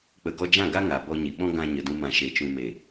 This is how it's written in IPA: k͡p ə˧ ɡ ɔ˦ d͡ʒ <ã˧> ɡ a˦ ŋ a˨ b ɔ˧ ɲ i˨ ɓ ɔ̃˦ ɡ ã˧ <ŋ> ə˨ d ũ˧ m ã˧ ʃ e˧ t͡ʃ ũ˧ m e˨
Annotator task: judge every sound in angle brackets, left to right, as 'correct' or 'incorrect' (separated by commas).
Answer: incorrect, incorrect